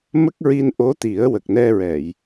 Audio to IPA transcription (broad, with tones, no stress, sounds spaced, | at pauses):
m ə˦˥ k̚ ɹ i˧ n ʔ o˧˥ t̪ i˨˩˦ ə̯ w ə˨˩ k̚ n ɛ˧ ɹ ɛ˨˩˨ j